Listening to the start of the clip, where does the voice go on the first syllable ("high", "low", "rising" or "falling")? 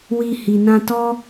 low